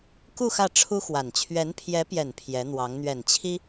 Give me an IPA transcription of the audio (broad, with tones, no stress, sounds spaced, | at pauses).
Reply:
k u˥˧ x ä˥˩ ʈ͡ʂʰ u˥ x w a˨˩ n t͡ɕʰ ɥ ɛ˧˥ n pʰ j ɛ˧˥ p j ɛ˨˩ n pʰ j ɛ˧˥ n̪ w ɑ˧˥ ŋ n̪ ɥ ɛ˨˩ n t͡ɕʰ i˥